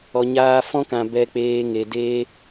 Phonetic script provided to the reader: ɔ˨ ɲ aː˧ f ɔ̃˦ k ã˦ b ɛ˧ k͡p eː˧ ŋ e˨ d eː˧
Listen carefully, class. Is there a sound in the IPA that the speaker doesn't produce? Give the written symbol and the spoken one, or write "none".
ã˦ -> ã˨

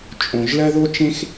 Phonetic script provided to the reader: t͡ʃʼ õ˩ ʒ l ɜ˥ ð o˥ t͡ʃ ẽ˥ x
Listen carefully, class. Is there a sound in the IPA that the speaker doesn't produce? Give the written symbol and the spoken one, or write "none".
none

